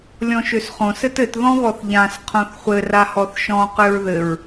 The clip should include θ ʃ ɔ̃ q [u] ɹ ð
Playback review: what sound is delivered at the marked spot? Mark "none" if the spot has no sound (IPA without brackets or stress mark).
ø